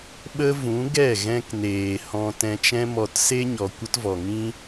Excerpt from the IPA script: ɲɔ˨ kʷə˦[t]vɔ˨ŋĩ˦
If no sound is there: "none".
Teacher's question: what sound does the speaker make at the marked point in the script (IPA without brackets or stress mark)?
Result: t